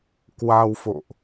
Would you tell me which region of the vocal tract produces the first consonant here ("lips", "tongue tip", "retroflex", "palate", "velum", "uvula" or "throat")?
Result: velum